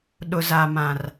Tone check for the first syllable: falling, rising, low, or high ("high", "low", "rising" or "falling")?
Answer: low